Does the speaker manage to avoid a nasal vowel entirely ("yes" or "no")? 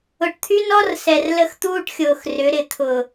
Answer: yes